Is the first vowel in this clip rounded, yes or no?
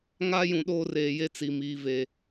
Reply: no